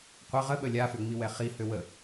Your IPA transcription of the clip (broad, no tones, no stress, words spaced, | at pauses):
qʷə ʁə ɓəlʲafø ŋ͡miwɛχi høwə